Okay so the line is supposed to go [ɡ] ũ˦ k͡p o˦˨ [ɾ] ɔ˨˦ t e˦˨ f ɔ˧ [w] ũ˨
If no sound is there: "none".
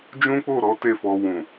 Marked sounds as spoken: d͡ʒ, ɾ, w

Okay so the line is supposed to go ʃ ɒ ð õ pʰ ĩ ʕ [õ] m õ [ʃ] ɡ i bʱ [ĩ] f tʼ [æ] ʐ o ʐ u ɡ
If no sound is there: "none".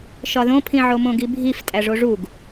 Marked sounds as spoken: o, none, i, æ

